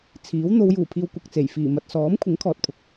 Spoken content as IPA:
t͡sʰ iː˨˥ w n̪ o˨˧ w j uː˨˩ pʰ iː˨ w kʷ ɐ˨ k̚ t͡s e˨˩ j f iː˨˩ m ɐ˨ t̚ s ɔː˨˥ m kʷʰ ɪ˨˥ ŋ kʰ ɔː˨ t̚ pʰ ʊ˨ k̚

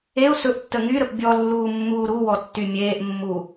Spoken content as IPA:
e ʊ̯ s ɵ ʔ tː ə ŋ y ɾ ə p bʲ ɔ lː uː mː uː ɾ u w ɔ tː y mʲ eː ʔ mː u

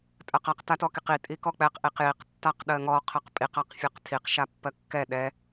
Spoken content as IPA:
tʼ ɜ q a q t a t ɔ k i q i tʼ i k ɔ k͡p ɛ q ʔ i q j i q tː a q ɗ ɜ ŋ ɔ qʰ ɜ q pʼ i q a q fʲ ɜ q tʰ i q ʃ a pː ɜ kː ɛ ɗ ɛ

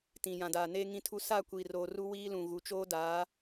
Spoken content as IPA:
t ĩ˨ j ã˨ d aː˨ n eː˦ ŋ ĩ˦ tʰ u˦ s a˦˨ kʷ i˨ r oː˨ r u˦ w iː˦ l ũ˨ ɣ u˨ t͡ʃ oː˦ d aː˨˦

